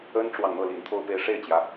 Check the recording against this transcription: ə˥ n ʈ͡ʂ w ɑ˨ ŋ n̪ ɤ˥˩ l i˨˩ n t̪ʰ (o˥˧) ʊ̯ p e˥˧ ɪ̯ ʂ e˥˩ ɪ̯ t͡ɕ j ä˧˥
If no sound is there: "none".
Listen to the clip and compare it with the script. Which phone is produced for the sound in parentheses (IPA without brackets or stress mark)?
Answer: o˥˧